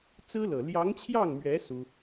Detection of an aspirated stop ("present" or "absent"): present